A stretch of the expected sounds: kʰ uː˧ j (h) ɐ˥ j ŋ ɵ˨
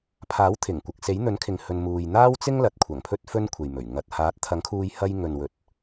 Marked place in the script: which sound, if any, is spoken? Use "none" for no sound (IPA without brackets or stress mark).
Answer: h